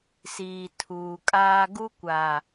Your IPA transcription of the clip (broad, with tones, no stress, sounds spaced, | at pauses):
s iː˨ tʰ uː˨ kʼ aː˦ ɡ u˦ kʷ a˨